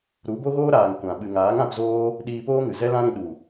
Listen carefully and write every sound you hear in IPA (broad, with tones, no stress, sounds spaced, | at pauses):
ɾ u˨˦ b o˦ ɣ oː˦ ɾ aː˨ ŋ kʷ ã˨ ɓ ɨ˨ ŋ aː˨˦ ŋ ã˧ p z oː˦ | ɗ iː˧ p oː˦ ŋ ɨ˨ z ɛ˦ l ã˦ ɾ ĩ˧ ɗ u˨